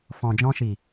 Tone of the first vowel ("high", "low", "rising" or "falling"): low